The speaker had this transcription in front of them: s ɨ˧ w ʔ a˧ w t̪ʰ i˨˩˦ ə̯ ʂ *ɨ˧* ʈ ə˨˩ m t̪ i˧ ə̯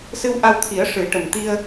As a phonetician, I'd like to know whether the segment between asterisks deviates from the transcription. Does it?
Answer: yes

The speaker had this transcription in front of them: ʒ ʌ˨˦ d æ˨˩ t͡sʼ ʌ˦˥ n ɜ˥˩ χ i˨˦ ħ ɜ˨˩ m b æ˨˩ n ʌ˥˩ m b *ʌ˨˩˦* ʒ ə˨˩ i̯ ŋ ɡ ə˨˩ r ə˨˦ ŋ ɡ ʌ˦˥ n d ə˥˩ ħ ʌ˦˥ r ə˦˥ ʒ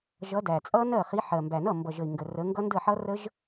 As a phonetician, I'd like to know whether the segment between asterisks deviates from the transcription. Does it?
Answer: yes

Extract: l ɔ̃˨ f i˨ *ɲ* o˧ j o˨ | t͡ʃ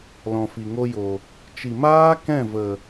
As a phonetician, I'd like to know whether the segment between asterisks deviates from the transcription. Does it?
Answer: yes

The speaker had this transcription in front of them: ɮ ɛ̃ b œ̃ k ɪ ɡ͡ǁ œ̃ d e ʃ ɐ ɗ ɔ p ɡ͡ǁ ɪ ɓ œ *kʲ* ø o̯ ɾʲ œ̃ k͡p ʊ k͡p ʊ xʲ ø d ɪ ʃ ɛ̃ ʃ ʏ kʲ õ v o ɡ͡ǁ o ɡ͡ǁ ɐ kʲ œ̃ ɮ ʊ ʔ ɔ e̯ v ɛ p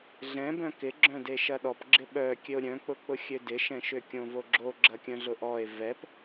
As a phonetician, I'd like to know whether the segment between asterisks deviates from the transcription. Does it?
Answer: no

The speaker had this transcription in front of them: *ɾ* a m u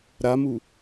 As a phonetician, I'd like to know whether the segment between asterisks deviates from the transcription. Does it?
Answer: no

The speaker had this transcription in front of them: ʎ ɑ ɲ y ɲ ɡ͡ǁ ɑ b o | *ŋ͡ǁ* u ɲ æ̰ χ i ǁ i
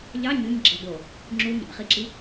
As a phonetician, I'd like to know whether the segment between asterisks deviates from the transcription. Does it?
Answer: no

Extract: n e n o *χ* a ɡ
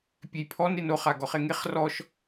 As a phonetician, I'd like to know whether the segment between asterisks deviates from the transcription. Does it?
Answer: no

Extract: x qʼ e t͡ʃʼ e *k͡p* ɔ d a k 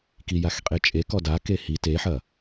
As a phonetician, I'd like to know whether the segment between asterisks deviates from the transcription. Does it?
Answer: yes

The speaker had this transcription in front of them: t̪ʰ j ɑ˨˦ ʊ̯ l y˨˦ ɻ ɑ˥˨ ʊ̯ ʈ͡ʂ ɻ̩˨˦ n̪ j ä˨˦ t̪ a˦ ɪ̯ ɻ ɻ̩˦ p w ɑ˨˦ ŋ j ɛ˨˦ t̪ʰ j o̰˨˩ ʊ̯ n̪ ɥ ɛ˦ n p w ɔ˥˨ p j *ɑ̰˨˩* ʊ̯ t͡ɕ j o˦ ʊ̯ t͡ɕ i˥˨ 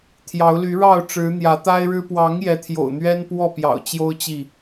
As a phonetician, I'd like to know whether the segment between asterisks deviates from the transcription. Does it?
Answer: no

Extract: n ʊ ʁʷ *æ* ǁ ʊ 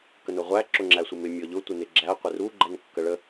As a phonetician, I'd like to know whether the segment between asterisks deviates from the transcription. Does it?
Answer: no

